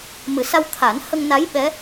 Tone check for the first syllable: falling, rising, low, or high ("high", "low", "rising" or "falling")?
low